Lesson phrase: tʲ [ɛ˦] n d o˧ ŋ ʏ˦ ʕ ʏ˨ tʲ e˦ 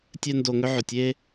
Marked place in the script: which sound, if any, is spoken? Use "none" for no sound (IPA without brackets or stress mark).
ɛ˦